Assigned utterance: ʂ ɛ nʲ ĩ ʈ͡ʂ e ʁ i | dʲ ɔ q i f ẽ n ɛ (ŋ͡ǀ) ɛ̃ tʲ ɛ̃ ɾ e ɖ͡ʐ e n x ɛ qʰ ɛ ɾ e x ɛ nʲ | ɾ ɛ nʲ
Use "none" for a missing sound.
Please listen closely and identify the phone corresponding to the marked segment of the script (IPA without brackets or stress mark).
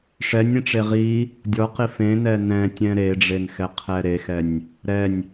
n